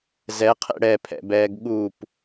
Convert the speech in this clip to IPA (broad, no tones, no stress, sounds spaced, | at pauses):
z ɛ qʰ ḛ ɽ ɛ pʰ ɛ̰ b ɛː ɡ ɠ u p